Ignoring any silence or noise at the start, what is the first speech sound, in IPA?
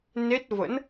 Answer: n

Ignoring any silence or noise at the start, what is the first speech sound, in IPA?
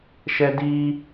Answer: ʃ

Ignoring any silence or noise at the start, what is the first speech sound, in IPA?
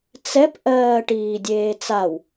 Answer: t͡s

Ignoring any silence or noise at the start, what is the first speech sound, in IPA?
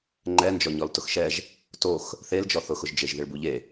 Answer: ŋ͡ǃ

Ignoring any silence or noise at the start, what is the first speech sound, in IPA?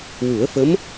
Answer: w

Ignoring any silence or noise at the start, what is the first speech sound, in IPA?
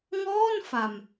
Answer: ŋ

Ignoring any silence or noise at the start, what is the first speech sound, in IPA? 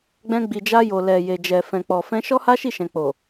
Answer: ɡ͡b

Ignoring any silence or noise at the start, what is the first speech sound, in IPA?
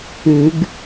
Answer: ʉ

